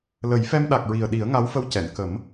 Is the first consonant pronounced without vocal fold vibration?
no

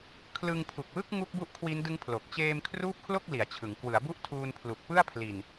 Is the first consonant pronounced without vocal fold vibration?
yes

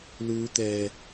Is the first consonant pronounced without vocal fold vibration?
no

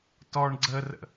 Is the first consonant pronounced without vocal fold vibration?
yes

